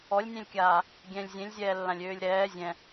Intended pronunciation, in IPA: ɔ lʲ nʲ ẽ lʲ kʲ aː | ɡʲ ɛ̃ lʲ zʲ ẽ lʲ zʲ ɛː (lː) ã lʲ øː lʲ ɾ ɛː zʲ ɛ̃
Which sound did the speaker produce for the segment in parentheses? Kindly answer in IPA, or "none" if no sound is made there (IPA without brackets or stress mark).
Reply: lː